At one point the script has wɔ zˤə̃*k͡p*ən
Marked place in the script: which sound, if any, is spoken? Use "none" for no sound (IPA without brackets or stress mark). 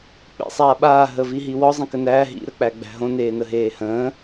k